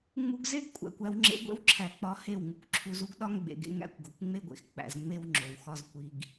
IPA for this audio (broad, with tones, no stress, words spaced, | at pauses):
ŋ͡mu˧ɡze˦ɡkʷʼæ̰˨kʷ æ˧wŋ͡ǁḛ˧ ɡʷḛ˦wǁʰæ˨k͡pɒ˨˦ he˦˨wŋu˨kʷǁʰu˧z u˦ɡɗɒ˦ŋɡ͡bḛ˨ɡḛ˧ ŋæ̰˧kʷɡo˨kʷŋ͡me˦ɡʷḛ˨x k͡pæ̰˨z ŋ͡me˦wŋ͡ǁo˨w xɒ˦z kʷi˦ɡ